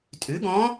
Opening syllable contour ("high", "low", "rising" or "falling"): rising